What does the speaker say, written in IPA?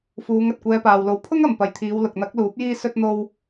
fuː˨˧ŋ ɐ˨t̚kʷɛː˨˧paː˨wlo˨˥w pʰʊ˥ŋ ɐ˨mpɐ˨˧jt̪ʰiː˨˧w lʊ˨k̚n̪ɐ˨˥k̚luː˨˥p̚jiː˧ sɵ˧t̚n̪o˧w

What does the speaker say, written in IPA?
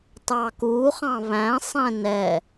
tɑkuχɑ̃ βæ̃sˤɛ̃ nɛ

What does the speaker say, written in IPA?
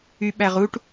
yɓæʁuʈ

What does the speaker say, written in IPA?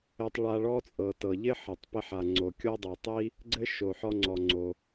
ɘ˧tˤɭa˧ɭɔ˥t͡sʼɤ˩ tɤ˩ ʎɪ˥ħɘ˩tˤpɪ˧ħa˩ ŋ͡ǀo˩kʲo˥dˤɤ˩tˤi˥ | ɡ͡ǀɘ˥ʃo˩ħɔ˧ŋ͡ǀɔ˩ ŋ͡ǀo˩

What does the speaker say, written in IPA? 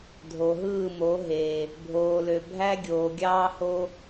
dʱo˨ɦɯː˦˨mo˨˦ ɦe˨ | bʱoː˨lø˨ bʱæ˦ɡʲoː˨ɡʲɑː˦ho˦

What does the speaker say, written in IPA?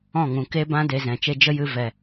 ɔ̃˦˨ŋũ˨ ke˦bã˦ de˧zɛ̃˨t͡ʃe˦ d͡ʒə˦jɨ˧ vɛ˨

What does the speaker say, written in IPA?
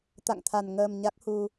t̪a̰˧˨ŋt̪ʰa˨˩n ŋəː˨˩m ɲa˦˥k̚hu˧

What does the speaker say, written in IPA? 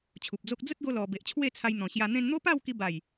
t͡ɕʰu˨p̚d͡zo˦k̚ d͡zə˦t̚ɡo˧ lɔ˨˩ be˨ʔt͡ɕʰwe˥˧t͡sʰa˧j n̪ɔ̃˨˩ɕja˧ n̪ẽ˧nn̪o˦pa˥˧w ki˧ba˨˩j

